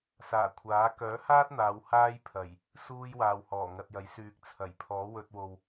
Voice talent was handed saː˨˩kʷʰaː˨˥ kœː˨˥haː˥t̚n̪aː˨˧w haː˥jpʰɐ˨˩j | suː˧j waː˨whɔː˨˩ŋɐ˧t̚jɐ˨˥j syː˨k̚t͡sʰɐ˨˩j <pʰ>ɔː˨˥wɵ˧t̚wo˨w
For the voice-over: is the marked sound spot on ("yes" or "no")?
yes